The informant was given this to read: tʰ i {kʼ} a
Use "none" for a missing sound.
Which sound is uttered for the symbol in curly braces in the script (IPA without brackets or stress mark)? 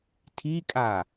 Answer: kʼ